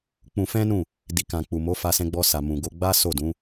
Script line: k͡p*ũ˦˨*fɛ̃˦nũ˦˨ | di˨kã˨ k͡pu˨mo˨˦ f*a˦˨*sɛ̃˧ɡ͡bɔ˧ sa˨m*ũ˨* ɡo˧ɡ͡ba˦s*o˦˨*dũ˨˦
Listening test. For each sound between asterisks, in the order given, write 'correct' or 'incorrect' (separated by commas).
incorrect, incorrect, correct, correct